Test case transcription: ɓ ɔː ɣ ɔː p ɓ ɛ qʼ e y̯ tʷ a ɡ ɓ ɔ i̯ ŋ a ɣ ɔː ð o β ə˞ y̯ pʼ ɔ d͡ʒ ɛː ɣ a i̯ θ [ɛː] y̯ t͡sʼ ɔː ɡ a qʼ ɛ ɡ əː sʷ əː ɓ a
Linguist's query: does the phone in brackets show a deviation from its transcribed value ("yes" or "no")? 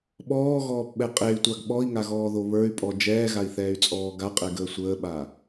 no